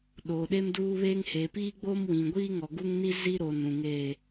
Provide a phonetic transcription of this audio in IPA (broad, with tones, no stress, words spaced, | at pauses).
ɗoː˨ɗe˦mduː˦βeː˦ŋ he˨piː˦ɡ͡bo˦mwĩ˨ ɡʷiː˦ŋɔ˨ ɡu˦ŋni˦ zi˦ ɾo˨nũ˨ŋeː˦˨